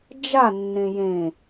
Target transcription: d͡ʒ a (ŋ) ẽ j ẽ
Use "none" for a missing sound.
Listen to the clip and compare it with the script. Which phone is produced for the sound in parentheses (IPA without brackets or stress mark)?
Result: nː